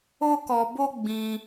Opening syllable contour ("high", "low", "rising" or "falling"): high